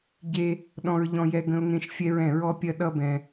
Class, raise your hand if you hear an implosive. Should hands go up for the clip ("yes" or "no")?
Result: yes